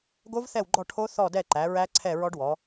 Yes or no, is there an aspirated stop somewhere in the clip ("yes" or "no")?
yes